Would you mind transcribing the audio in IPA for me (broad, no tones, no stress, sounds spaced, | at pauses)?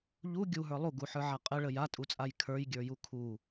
ʎ u ɡʲ u ɦ ə˞ lˠ u ɡ u ħ ə˞ ʕ a qʼ ə ɭ ə j a tʼ u t͡sʼ a j kʰ ə˞ j ɡʲ ə˞ j u kʰ u